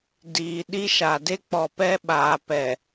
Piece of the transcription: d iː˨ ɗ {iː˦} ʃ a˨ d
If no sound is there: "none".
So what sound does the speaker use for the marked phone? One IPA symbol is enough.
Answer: i˦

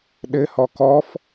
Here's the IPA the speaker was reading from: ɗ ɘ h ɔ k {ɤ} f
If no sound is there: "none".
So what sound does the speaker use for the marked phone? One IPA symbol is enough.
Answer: ɔ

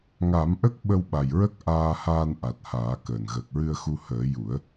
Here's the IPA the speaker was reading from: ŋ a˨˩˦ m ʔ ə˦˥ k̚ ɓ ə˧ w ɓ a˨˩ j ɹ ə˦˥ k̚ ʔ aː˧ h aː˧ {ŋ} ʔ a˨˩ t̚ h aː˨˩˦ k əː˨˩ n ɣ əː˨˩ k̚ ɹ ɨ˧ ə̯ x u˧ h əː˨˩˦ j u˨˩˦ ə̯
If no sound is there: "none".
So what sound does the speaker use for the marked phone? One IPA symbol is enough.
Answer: n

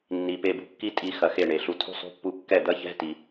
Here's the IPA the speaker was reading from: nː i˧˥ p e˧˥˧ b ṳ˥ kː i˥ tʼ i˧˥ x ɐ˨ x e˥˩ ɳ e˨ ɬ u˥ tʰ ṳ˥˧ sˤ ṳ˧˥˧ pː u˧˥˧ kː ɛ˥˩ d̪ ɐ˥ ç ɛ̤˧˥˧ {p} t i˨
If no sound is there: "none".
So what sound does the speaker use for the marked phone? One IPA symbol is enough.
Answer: none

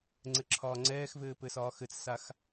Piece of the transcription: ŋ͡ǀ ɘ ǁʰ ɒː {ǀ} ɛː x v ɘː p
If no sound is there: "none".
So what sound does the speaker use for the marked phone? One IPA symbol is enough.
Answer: ŋ͡ǀ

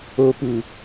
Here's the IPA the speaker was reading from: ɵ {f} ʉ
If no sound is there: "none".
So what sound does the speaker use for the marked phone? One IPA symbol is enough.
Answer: p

